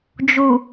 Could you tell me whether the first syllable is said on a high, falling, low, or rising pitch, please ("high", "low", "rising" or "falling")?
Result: low